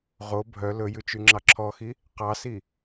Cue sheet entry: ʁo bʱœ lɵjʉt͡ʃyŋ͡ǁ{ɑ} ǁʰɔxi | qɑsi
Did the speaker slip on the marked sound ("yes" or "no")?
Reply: no